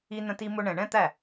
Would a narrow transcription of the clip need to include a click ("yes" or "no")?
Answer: no